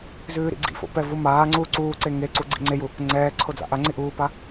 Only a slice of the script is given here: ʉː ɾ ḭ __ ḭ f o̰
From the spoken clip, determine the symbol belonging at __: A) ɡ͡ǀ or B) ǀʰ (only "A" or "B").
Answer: A